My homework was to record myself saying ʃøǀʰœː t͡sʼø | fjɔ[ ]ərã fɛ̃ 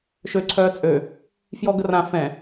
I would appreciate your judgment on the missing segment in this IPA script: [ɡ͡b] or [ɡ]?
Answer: ɡ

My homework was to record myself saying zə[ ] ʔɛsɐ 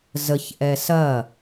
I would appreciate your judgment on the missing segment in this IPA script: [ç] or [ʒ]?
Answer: ç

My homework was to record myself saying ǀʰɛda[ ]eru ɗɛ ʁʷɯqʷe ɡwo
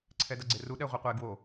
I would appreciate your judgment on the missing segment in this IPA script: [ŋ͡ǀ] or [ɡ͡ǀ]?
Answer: ɡ͡ǀ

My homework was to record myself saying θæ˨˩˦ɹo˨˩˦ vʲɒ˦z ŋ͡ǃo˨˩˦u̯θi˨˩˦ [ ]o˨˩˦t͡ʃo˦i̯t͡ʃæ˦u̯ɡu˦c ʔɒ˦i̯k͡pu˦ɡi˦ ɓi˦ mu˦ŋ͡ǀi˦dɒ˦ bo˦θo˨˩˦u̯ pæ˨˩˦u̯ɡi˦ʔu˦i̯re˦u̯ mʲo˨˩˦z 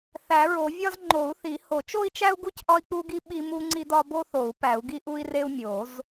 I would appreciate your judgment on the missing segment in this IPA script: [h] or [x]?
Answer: h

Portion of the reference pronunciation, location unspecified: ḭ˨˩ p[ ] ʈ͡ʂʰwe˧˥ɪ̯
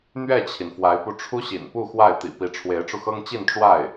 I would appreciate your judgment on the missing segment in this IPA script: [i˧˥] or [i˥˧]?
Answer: i˧˥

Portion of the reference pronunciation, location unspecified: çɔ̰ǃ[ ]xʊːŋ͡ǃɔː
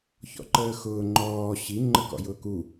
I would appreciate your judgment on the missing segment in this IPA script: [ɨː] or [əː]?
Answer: əː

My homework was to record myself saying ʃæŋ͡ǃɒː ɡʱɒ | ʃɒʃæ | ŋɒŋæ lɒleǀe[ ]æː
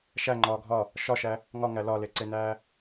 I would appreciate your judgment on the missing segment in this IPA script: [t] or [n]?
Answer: n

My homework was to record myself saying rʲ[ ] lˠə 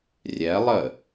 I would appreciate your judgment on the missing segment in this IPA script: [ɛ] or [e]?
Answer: ɛ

